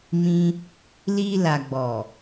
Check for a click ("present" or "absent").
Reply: absent